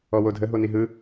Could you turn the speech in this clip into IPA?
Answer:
ɔ w o dʱ ə ɦ o n i ɦ ɯ

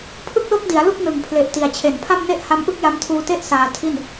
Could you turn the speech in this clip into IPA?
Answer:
pʰ ɯ˥˩ k̚ l o˥˩ k̚ d i˩˦ a̯ l u˥˩ k̚ n ɯ˨˩ ŋ pʰ l e˨˩ ʔ t i˨˩ a̯ t͡ɕʰ e˨˩ n pʰ a˥˩ m n e˥˩ ʔ h a˦˥ m ʔ ɯ˥˩ k̚ j a˦˥ m tʰ uː˧ t e˥˩ ʔ s aː˧ tʰ i˥˩ n

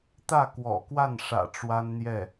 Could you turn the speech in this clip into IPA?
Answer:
t̪ ä˥˩ k w ɔ̰˨˩ k w a˥˩ n ʂ ä̰˨˩ ʈ͡ʂ w a˥ n n̪ j ɛ˥˩

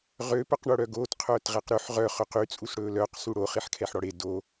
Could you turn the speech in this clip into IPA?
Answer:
ʁ ø p œ q ɳ o ɽ œ ɡ oː t qʰ œː t ʁ ɛ q ɾ ʉ ħ ʁ œ χ ɵ q y t͡sʼ u s ɽ ɵː l œː q s u ɽ o χ i ħ kʰ ɛ ħ ɽ ɔ ɽ e d o

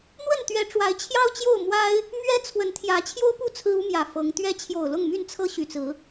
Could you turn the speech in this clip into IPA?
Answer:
n̪ w ə˥˨ n t̪ ɥ ɛ˨˦ ʈ͡ʂ w a˨˦ ɪ̯ t͡ɕʰ j ɑ˦ ʊ̯ t͡ɕ j o˥˨ ʊ̯ m w a˦ ɪ̯ | m ɥ ɛ˦ t͡sʰ w ə˨˦ n t̪ʰ j ä˨˦ t͡ɕʰ j o˦ ʊ̯ p u˥˨ t͡sʰ ɹ̩˦ u˦ m j ä˨˩ f ɤ˨˦ ŋ t̪ ɥ ɛ˦ t͡ɕʰ j o˨˩ ʊ̯ l ʊ˥˨ ŋ m y˥˨ n t͡sʰ ɤ˦ ɕ y˨˩ t͡s ɹ̩˨˦

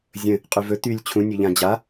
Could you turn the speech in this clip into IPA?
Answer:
zʲ ə̃ | qʼ y v ɵ t̪ y lʲ t͡ɕʰ ũ nʲ ɵ ʎ ã d͡ʑ a

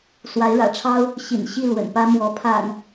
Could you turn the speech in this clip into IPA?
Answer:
s w a˨˦ ɪ̯ ɻ ä̰˨˩ ʈ͡ʂʰ ɑ˦ ʊ̯ | ɕ ḭ˨˩ n ɕ i˥˨ l w ə̰˨˩ n p ä˦ m w ɔ˨˦ pʰ a̰˨˩ n

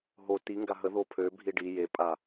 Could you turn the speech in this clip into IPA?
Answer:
ɦ o t i ŋ ɡ a ɦ ə ð o pʰ ø bʱ i ɖ i j e pʼ a

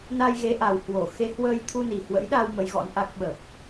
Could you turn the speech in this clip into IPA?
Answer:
n a˧ j ɣ e˨˦ ʔ a˨˩ w h w o˧˩ x e˨˦ h w əː˧ j t̪ʰ u˧ n i˨˩ h w ə̰˧˥ j ɗ a˧ w m ə˨˦ j ɣ ɔ̰˧˥ n ʔ a˦˥ k̚ ɓ ə˨˩ p̚

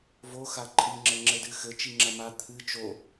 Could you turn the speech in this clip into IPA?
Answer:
v o x a ǃʼ i ŋ͡ǁ ɘ ŋ͡ǁ ɘ d ɨ x ɘ t͡ʃ i ŋ͡ǁ ɐ m a t̪ʰ ɨ t͡ʃ o

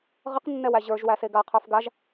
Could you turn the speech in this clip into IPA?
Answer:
ʁ ə q nː ɛ w æ ʑ ə˞ ʒ w æ s e ɡ a qʰ ə˞ f ɡ a ʒ

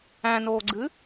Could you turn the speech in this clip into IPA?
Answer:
æ̃ n oː ɡ͡ǀ ɨ

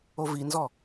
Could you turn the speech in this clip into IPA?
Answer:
o v i n z ɔ

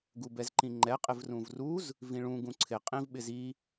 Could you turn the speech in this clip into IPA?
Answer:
ɡ u b ɛ z ǃ ĩ ŋ͡ǃ ɛ qʼ ɪ v r ũ v r u z | v ĩ ɭ ũ ɡ ũ ǀʰ ɪ qʼ ĩ v ɓ ɪ z i

